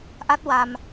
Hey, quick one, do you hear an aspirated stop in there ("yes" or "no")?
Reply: no